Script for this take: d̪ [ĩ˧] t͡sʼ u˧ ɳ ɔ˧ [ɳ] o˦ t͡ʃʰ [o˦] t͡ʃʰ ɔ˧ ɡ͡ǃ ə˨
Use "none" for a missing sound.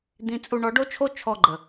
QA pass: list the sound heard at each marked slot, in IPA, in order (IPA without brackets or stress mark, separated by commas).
ĩ˧, ɖ, o˦